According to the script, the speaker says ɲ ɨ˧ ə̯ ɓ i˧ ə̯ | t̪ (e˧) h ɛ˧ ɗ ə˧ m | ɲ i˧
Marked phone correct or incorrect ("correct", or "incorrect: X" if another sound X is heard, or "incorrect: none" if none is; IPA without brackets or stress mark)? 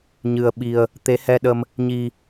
incorrect: e˨˦